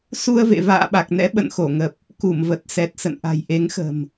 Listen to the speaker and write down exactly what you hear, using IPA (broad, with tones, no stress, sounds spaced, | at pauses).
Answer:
s u˧ ə̯ v ḛ˧˨ v a̰ː˧˨ ɓ a˨˩ k̚ n ɛ̰˧˥ ɓ ə̰˧˨ n x o˧˩ ŋ ə˨˩ p̚ | k u˧˩ m v ə˨˩ t̚ s ɛ˨˩ t̚ s ə̰˧˨ n ʔ a̤˨˩ j ʔ e˨˦ ŋ x ə̤˨˩ m